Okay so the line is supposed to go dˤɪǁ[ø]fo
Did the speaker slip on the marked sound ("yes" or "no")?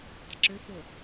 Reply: no